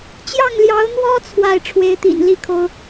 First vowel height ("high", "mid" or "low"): low